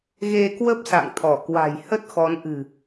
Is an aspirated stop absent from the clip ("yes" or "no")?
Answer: no